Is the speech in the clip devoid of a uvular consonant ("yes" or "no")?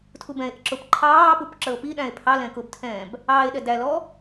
yes